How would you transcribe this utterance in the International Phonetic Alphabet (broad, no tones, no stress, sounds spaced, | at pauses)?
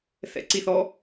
θ ɛ̰ ǀ i θ ɔ